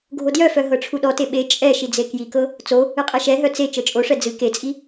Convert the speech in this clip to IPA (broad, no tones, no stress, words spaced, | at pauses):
ɡʱodjœfœ ɦɤʈ͡ʂʰuɗɔte ɓe t͡ʃʼɛ ʃid͡zekjikɤ | t͡so | ɨqʼɛʃɛɦœ t͡se t͡ʃɤt͡ʃʼoʂɛ d͡zɨ ket͡sʼi